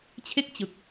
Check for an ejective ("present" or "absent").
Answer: absent